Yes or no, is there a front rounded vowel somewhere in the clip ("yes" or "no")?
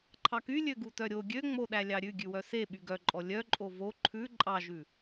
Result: yes